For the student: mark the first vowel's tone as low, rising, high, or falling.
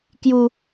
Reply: high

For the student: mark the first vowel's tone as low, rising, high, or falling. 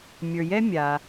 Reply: low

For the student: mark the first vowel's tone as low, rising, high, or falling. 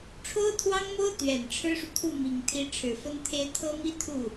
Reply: high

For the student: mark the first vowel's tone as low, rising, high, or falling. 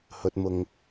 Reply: low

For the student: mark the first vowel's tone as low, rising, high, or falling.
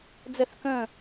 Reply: falling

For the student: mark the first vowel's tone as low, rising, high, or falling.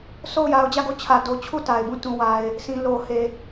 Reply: falling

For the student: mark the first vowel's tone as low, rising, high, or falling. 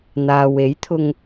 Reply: low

